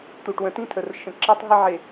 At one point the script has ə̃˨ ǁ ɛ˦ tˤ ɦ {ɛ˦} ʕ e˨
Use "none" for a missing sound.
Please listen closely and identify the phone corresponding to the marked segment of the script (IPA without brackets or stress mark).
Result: ɪ˦